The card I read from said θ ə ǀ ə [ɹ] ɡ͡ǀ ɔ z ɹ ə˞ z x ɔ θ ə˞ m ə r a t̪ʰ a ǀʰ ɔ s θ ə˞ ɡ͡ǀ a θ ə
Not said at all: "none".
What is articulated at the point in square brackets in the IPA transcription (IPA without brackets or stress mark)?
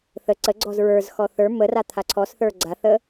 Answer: none